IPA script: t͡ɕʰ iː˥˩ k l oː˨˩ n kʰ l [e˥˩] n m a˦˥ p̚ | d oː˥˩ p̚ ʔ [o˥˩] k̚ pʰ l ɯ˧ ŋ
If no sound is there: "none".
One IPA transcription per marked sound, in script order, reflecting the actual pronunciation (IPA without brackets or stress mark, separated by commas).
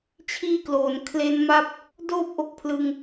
e˦˥, o˥˩